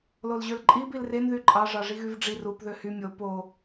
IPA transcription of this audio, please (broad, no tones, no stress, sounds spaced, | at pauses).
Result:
l o l ʑ ø l ǃʼ i b i l r e n ð y ǃʼ ɑ ʐ ɑ ʐ i ɣ y v ɖ͡ʐ i r u p ð ø h y mʲ o p o